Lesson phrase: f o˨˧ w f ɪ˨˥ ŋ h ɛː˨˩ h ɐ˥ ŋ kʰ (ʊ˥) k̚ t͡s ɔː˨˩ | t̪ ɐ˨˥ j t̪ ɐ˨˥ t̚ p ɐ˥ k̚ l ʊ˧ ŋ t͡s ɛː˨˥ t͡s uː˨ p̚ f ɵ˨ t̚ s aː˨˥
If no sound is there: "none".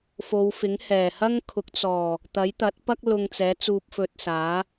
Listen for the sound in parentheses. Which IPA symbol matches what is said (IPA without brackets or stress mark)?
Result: ʊ˨˥